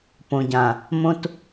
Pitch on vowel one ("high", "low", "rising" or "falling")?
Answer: low